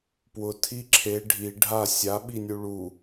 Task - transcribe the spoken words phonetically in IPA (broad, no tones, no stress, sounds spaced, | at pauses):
p w ʊ tʰ i ǁʰ e ɖʱ i ɖʱ a sʲ a ɓ i nʲ u ɭ u